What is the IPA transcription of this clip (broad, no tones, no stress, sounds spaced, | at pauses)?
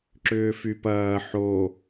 ǁ ʏː f y p ɐː ħ o